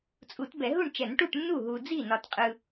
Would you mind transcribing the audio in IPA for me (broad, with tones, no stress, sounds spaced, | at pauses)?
t͡sʼ u˨˩˦ t b ɛ˨˩˦ ɦ u˥˩ ɳ t͡ʃ ɛ˨˩˦ n ʈ u˥˩ ʈ nː u˥˩ ɦ u˨ d͡z i˥˩ n ɒ˨ t qʼ ɯ˨